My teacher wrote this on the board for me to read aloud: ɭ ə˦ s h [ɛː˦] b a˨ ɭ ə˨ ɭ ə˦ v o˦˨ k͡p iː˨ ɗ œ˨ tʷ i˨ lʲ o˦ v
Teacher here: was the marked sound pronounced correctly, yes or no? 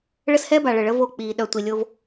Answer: yes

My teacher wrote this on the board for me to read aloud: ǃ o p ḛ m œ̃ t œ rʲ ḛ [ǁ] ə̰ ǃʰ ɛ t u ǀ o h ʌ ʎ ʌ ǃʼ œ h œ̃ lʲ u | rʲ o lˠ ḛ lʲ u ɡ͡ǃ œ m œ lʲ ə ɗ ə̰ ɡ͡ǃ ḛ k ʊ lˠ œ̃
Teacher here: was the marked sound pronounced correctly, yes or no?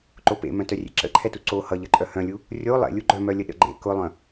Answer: yes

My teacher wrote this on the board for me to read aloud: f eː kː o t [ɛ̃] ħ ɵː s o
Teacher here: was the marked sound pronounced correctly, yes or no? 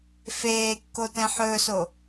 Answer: yes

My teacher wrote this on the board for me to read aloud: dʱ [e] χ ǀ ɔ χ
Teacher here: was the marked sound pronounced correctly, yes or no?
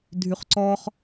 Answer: no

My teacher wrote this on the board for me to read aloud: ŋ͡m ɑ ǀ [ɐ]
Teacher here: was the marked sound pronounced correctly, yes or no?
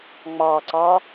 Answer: no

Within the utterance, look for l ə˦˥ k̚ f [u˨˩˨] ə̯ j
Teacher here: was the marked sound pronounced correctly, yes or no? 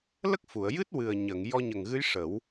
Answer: yes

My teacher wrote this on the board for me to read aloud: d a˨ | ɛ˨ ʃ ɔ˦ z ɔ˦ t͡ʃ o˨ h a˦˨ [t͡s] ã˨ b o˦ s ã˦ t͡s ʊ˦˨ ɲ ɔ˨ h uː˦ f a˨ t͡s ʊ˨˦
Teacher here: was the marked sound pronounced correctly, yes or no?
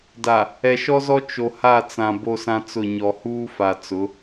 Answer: yes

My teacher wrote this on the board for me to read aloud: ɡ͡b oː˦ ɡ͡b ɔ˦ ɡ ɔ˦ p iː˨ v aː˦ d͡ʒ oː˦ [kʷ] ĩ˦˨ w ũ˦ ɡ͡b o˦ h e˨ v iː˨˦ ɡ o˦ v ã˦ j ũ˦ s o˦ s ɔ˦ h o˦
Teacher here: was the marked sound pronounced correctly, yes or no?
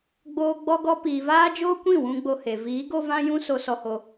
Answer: yes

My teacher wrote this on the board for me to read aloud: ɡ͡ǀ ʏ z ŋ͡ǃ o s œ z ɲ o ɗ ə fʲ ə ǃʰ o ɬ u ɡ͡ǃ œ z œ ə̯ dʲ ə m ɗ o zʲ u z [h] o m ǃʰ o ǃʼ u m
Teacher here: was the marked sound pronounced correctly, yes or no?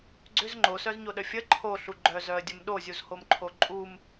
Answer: yes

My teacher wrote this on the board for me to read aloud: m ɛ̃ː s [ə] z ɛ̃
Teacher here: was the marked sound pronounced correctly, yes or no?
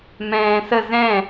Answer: yes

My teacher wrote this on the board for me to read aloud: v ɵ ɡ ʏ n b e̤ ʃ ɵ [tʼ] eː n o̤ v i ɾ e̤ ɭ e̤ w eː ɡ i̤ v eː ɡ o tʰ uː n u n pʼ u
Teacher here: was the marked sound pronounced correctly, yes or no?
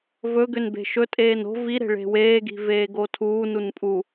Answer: yes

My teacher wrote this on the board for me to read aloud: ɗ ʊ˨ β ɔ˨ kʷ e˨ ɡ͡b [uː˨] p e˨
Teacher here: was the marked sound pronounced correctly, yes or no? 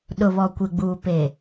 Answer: yes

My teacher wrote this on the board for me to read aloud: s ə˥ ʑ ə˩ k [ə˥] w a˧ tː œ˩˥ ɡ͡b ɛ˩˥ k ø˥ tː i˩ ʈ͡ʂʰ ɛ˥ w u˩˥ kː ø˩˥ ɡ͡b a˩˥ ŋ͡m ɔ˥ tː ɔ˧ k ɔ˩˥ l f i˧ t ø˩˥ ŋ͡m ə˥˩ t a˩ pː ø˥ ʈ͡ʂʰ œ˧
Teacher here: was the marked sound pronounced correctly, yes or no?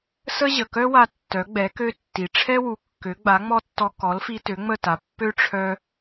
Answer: no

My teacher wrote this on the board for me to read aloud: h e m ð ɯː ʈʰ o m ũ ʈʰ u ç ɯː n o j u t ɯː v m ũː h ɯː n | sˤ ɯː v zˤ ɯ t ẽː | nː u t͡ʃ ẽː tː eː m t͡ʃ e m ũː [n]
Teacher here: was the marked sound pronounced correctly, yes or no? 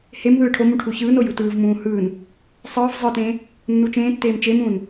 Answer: yes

